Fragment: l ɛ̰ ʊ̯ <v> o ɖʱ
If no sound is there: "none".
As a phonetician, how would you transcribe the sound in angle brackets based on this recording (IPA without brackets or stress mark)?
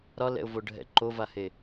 v